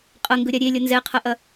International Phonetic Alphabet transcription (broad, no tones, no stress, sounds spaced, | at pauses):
qʼ ɐ ŋ ɡ ɵ ɾʲ a ɾʲ e lʲ ɐ n z ɛ qʰ ɐ ʔ ɐ